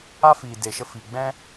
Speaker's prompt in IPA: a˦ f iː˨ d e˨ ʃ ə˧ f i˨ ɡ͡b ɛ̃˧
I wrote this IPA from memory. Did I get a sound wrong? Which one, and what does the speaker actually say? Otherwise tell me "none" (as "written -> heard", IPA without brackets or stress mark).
none